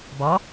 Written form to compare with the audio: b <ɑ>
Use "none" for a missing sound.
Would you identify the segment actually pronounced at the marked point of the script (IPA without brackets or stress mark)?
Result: ɑ